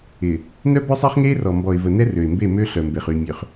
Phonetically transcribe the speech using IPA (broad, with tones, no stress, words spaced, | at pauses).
ɪː˨ | nœ˦ bœ˦sˤɪː˦χ ŋeː˦rɔ˨mbɔ˨ɪ̯və˨ nɛ˦rø˨ɪ̯mbe˦˨ mø˦ɬœ˨mbe˨χ y˨mʲø˨χ